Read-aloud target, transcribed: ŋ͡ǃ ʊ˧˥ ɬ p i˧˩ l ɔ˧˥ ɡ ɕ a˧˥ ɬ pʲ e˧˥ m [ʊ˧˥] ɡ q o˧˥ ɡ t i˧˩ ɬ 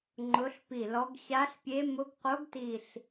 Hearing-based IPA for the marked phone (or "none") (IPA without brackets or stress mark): ʊ˧˥